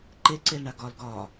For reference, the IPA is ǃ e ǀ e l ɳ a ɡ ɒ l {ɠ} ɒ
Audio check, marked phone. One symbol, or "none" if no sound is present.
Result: ɡ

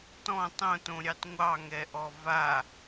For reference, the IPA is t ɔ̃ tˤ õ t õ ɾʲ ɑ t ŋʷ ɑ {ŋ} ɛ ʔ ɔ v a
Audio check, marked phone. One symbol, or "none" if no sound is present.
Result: ŋ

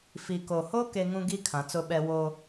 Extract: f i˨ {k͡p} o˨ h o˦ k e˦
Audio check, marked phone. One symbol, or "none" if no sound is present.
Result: k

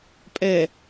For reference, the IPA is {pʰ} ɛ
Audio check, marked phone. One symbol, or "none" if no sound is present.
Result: pʼ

